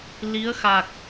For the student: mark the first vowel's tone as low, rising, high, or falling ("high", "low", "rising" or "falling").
rising